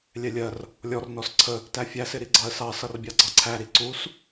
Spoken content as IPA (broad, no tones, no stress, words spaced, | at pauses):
lʲɛlʲɜr | lʲɔr nɔsǀʰə | tæfʲæs ɪɾiɡ͡ǀɑə̯sɑ sʌrbʲɑɡ͡ǀɑǀʰæ ɾiǀus